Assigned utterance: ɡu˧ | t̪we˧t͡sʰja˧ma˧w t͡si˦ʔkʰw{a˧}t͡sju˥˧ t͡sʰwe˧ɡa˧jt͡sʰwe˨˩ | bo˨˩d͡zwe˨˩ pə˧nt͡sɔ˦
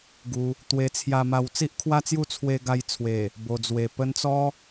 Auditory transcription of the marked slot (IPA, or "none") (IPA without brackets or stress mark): a˦